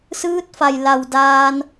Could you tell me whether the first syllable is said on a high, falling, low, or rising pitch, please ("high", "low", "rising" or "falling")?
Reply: rising